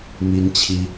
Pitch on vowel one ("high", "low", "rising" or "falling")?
high